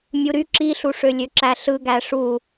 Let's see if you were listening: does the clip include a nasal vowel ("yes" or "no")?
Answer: no